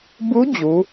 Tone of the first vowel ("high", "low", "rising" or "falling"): rising